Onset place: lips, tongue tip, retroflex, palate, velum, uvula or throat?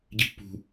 palate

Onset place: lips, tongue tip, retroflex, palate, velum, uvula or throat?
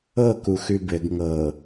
velum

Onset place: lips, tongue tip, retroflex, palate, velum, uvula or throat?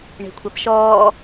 retroflex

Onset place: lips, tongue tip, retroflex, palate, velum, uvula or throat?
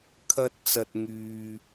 velum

